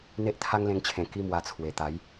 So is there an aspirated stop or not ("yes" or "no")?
yes